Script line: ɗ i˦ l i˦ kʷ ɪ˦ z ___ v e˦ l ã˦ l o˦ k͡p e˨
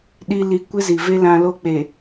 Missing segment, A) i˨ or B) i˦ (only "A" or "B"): A